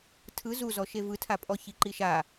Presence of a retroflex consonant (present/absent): absent